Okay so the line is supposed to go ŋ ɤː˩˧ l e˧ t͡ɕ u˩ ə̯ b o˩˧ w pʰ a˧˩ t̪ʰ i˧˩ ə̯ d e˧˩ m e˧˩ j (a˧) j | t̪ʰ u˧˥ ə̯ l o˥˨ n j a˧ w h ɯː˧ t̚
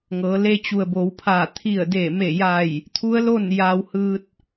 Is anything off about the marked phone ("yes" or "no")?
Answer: yes